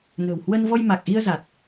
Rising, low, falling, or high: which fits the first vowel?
low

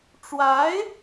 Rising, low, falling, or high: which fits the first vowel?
rising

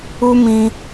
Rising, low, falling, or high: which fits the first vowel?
high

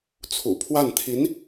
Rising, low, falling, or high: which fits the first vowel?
low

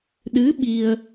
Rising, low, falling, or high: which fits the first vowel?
rising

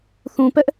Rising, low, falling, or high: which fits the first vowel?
low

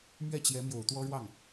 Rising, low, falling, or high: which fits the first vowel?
falling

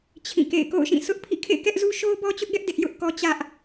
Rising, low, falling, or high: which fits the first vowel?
falling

